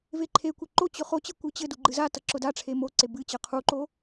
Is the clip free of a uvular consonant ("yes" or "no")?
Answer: no